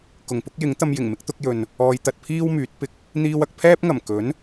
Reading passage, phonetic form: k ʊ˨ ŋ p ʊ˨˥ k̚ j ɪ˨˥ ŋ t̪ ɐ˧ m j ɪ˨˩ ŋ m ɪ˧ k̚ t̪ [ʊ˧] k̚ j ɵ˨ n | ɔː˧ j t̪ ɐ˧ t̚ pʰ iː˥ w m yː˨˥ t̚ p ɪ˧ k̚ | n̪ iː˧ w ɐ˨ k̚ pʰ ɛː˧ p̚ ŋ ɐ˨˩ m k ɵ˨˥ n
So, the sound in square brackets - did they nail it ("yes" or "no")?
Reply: yes